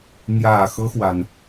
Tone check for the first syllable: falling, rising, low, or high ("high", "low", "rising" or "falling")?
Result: low